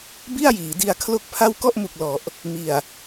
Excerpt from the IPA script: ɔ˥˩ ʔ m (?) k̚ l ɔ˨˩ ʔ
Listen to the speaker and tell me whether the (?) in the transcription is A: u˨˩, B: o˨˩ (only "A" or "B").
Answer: A